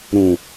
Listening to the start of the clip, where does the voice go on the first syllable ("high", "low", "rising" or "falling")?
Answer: low